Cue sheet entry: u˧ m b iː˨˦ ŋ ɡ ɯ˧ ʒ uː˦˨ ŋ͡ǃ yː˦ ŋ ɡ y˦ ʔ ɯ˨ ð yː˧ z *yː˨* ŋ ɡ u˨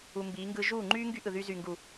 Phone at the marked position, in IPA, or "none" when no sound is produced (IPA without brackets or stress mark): yː˨